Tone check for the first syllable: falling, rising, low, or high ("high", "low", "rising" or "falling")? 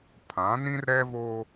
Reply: rising